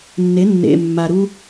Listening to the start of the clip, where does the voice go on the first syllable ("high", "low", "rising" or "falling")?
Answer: rising